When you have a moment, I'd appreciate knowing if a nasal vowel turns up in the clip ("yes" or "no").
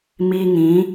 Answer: yes